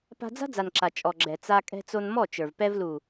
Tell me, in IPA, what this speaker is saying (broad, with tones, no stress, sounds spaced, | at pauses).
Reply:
p a̤˧ d͡z a̤˦ d͡z a˨ n ǁ a˨ t͡ʃʼ ɔ˨ ɡ͡ǁ ɛ˨ t͡s a˧ kʼ ɛ̤˧ t͡s o˧ n m ɔ˦˨ t͡ʃ ə˞˨ v p ɛ˧ v l u˨